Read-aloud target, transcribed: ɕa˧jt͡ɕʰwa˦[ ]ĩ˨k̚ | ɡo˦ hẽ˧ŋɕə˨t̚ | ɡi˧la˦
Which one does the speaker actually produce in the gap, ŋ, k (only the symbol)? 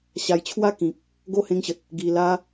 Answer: k